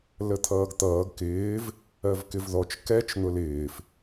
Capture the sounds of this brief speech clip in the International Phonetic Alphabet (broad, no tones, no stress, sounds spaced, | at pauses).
l ə t̪ʰ ʌː ɡ t̪ ʌː ɡ k ɪː v | ɜ v k ɪ v ð ɔ t͡ʃ k ɛ t͡ʃ n̪ ʊ l ɪː f